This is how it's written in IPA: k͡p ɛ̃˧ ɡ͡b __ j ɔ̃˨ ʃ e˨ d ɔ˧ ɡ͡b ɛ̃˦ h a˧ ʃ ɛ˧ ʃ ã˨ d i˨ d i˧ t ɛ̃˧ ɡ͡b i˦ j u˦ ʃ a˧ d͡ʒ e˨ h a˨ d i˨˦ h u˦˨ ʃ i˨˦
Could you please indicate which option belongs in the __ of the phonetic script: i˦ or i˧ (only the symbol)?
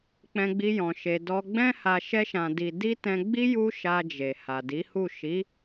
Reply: i˧